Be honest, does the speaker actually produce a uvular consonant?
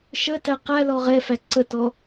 yes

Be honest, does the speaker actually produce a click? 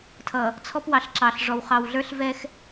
yes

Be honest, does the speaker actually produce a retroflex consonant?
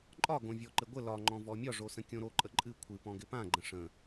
yes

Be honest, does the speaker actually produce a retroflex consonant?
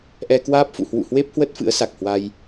no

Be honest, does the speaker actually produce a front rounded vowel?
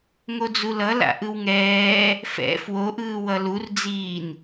no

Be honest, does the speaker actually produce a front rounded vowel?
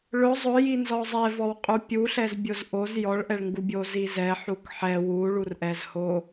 no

